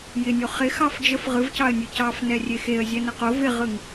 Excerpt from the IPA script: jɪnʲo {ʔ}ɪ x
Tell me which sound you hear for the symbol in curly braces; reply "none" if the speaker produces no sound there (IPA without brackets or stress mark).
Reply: χ